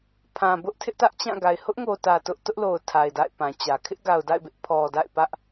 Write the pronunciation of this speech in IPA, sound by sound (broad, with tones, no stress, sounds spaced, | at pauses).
pʰ ã˨ b ʊ˦ ʔ tʰ ɪ˦ ʔ t ä˦ ʔ t͡ɕ ã˦˨ ɡ a˨ ɪ̯ h ʊ˦ ʔ ŋ o˨ t ä˨ t ʊ˦ ʔ t ʊ˦ ʔ l o˨ ʊ̯ tʰ a˨ ɪ̯ d a̰˦˨ ɪ̯ p ã˨ t͡ɕ ä˨ kʰ ɪ˦ ʔ ɡ a˨ ʊ̯ d a̰˦˨ ɪ̯ b ɪ˦ ʔ pʰ ɔ˨ d a̰˦˨ ɪ̯ p ä˦ ʔ